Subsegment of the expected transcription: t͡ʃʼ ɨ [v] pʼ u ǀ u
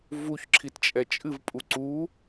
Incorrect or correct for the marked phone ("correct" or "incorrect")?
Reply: correct